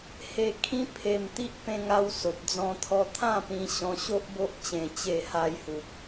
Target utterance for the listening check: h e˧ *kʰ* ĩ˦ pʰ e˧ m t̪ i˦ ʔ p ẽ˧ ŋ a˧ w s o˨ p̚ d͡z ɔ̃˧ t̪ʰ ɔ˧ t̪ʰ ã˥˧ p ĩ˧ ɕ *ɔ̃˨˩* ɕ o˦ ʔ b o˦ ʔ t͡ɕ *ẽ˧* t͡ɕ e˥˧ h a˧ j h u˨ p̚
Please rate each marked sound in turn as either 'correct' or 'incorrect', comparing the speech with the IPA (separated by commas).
correct, incorrect, correct